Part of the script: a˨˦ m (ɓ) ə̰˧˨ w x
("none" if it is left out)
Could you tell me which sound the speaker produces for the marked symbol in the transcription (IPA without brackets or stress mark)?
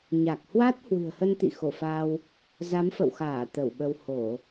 f